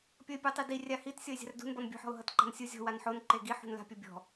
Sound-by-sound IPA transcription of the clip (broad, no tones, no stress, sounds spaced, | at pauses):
pʲ ʌ ɪ̯ pʲ u tˤ i d i rʲ a h i t sʲ ɔ ɪ̯ zʲ a̤ r d ṳ n b ɔ n bʲ ṳ ħ ɔ̤ ʊ̯ ɦ ʌ t ǃ a̤ n sʲ u zʲ ɔ̤ w a n ħ o n ǃ e ɡ i ħ ṳ n l a̤ pʲ ʌ bʲ ɔ̤